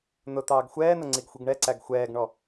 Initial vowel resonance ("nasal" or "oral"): oral